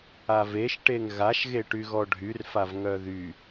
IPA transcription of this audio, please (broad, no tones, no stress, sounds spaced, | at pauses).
a v e ʃ ʈ e ŋ ɣ a ʃ ɣ e ʈ y ɣ ɔ ɖʱ y r f a v ŋ œ ð y